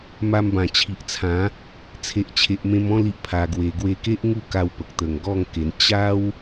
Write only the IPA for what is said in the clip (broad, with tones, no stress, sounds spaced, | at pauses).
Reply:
m a˧ m b ã˨˩ t͡ɕʰ i˨ ʔ t͡sʰ ã˨˦ | t͡sʰ e˨ ʔ t͡ɕʰ e˨ ʔ m ẽ˧ m ɔ̃˥˧ l i˦ ʔ pʰ a˧ ɡ w e˧ ɡ w e˧ k e˦ ʔ ŋ u˥˧ k a˧ w p ə˨ k̚ t̪ ə˨˩ ŋ ɡ ɔ˥˧ ŋ k e˧ n t͡ɕ a˦ w